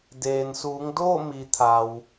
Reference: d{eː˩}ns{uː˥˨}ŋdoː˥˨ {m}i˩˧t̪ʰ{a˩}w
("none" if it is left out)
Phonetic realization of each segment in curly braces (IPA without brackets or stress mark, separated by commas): eː˩, uː˩˧, m, a˩